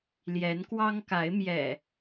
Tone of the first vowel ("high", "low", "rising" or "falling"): rising